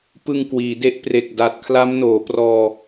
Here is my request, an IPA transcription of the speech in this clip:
p ɯ˨˩ ŋ k w iː˩˦ d e˥˩ ʔ p r e˨˩ k̚ d a˨˩ t̚ kʰ l a˦˥ m n oː˩˦ p r ɔː˧

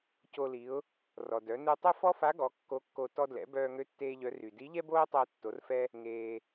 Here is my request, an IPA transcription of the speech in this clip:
c o˧ l i˩˧ ʊ̯ | r ɔ˩ d œ˩˧ n u˧ tˤ ø˥ f ɔ˥ f a˧˥ ɡ ɔ˩˧ kː o˧˥ kː o˧ t ɔ˧ d l ɛ̰˩˧ b œː˧ ŋ ø˧˥ tː eː˧ ʎ œ˩˧ r y˩ d i˧˥ ʎ ɛ˥ b oː˥ tˤ əː˧ tː o˩˧ r f ɛ˧ | ŋ eː˩

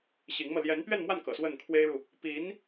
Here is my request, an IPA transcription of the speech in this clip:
ɕ i˧˥ ŋ m ɤ˧ l j ɛ˧˥ n p ɥ ɛ˥˧ n m w a˥˩ n k ɤ̰˨˩ s w ə˥˩ n kʰ w e˥ ɪ̯ ɻ u˨ | p i˧˥ n

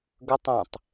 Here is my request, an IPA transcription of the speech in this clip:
ɡ ɵ tˤ ɛ̃ tˤ

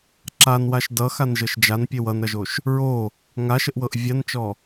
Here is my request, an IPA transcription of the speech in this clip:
ǁ a n w a ʃ d ʌ x a n ʒ ɤ ʃ d͡ʒ a n pʲ e w ʌ n ɾ ʌ ʒ o ʃ | ɹ o | ŋ a ʃ ə ʔ w ɤ ʔ vʲ a n t͡ʃ ɔ

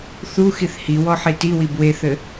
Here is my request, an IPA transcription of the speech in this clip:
θ u x i θ h i w ɔ ħ i t i w i b w e θ ɘ

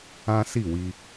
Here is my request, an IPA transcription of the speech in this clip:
ã˦ s i˦˨ w i˧

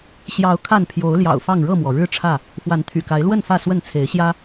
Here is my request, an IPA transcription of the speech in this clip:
ɕ j ɑ˨˦ ʊ̯ kʰ a˥˨ n pʰ j o˨˦ ʊ̯ l j ɑ̰˨˩ ʊ̯ f ɑ˥˨ ŋ ɻ ɤ˥˨ m w ɔ˩ ɻ ɻ̩˦ ʈ͡ʂʰ ä˥˨ | f w a˨˦ n t̪ʰ y̰˨˩ k a˨˦ ɪ̯ l w ə˥˨ n f ä˥˨ s w ə˥˨ n t͡sʰ e˨˦ ɪ̯ ɕ j ä˦

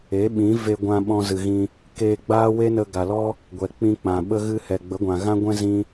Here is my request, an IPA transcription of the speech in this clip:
e˨˦ ɓ ĩ˨˦ v e˧ ɡʷ ã˧ ɓ ɔ̃˧ z ɨ˨ ɣ ĩ˧ | k eː˧ ɡ͡b aː˦ w e˦ n ə˧ ɡ a˨ l ɔ˦ | ɡʷ ɛ˨ k͡p ĩ˧ k͡p ã˨ ɓ ə˦ ɣ ɨ˦ h ɛ˨ ɡ͡b ə˨˦ ɡʷ ã˨ ɣ ã˦ ɡʷ ɛ̃˦ z ĩ˧

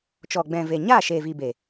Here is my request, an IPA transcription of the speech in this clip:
t͡ʃ ɔ˨ ɡ͡b ɛ̃˨ v e˨ ɲ a˦˨ ʃ e˨ v iː˨ b eː˨

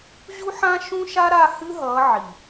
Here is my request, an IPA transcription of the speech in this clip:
ʑ u˦ ħ ã˦ ʃ ũ˦ ʃ a˦ ɾ a˦˨ h ɨ˦ ɦ ʌ˨˦ ʕ i˨

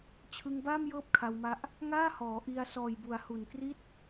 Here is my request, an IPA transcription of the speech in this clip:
t͡ɕʰ ɯ˧ ŋ b aː˥˩ m j ɤː˥˩ p̚ kʰ a˧ w m a˦˥ ʔ | ŋ aː˥˩ h ɔː˩˦ ʔ i˧ a̯ s ɔː˨˩ j b u˩˦ a̯ h u˨˩ n k r i˥˩ t̚

